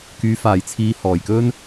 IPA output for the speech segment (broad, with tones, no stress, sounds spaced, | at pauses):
k yː˨˧ f aː˨ j t͡sʰ iː˧ h ɔː˨ j k ɵ˥ n